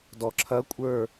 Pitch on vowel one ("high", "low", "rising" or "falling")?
low